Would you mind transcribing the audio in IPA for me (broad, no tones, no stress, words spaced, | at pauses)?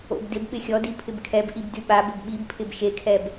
o̰bdɪb ɓɪxʲɔ dipʰɪbkʰɛb ʔibdyɓa bɘbɓibpʰɪb ʃekʰɛb